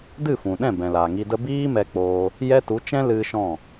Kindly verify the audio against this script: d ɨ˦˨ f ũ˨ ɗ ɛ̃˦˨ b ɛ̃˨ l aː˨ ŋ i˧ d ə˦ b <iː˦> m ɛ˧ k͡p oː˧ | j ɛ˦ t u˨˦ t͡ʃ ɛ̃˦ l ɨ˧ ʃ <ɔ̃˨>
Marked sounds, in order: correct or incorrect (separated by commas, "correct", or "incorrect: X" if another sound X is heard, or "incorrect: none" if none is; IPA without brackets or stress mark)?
correct, incorrect: ɔ̃˦˨